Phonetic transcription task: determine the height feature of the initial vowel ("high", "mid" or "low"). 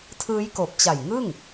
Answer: high